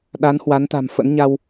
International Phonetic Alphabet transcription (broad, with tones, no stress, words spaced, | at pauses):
ɗa˨˦nhwa˨˦nt̪a̤˨˩mfə̰˧˥n ɲa˧w